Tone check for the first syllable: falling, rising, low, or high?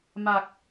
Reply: low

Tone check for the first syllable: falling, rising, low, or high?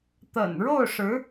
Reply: low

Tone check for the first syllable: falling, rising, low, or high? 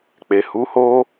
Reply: low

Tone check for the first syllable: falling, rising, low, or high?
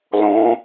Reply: rising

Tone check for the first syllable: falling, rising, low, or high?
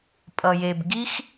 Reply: low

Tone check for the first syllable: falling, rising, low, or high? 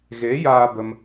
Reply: rising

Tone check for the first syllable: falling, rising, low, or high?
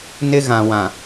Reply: high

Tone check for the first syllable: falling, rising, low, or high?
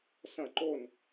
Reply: falling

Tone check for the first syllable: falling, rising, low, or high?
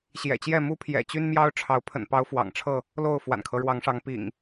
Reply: low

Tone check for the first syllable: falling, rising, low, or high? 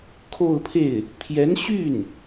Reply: falling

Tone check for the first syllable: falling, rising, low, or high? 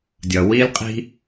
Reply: low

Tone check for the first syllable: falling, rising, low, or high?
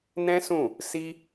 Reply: high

